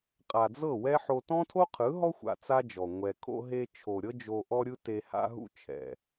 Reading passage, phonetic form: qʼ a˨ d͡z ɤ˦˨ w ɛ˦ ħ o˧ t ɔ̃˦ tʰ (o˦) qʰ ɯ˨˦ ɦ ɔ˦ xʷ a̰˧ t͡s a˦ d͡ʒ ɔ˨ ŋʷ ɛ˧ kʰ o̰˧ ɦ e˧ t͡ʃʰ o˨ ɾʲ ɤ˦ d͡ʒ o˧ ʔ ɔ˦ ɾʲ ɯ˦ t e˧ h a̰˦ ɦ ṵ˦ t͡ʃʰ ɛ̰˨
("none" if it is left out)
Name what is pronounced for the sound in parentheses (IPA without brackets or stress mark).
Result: o˦